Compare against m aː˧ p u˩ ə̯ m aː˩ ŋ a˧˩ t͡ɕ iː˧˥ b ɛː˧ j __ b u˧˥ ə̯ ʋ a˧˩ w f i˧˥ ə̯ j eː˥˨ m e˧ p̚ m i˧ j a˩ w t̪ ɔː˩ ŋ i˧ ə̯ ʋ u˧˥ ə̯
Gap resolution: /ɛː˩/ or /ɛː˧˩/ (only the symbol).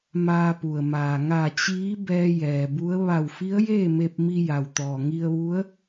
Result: ɛː˩